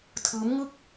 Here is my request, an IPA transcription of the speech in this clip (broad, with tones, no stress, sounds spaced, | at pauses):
tʰ ɯː˦˥ m ŋ ɯ˥˩ k̚